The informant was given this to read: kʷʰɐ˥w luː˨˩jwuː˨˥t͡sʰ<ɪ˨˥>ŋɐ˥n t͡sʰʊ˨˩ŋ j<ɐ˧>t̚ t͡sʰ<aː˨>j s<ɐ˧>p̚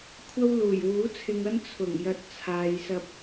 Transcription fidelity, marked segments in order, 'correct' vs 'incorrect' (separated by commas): incorrect, correct, incorrect, correct